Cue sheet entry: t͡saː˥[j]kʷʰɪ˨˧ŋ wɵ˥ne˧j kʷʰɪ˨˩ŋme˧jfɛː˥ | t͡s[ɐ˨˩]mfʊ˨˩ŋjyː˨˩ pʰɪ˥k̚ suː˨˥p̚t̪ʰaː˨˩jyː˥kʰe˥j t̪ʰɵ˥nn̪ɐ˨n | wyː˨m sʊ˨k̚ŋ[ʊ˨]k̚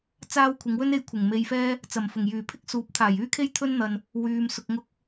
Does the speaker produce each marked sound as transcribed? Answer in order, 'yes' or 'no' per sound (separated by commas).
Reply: no, yes, no